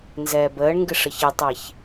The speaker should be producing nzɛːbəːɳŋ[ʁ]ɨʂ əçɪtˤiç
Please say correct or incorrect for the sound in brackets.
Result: incorrect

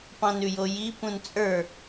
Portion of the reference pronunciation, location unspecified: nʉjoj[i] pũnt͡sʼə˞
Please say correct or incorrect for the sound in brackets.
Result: correct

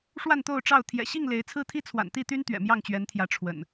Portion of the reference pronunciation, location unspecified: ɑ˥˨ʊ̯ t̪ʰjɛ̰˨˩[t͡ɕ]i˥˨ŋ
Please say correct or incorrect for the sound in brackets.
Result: incorrect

